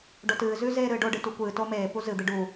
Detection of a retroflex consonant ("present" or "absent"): present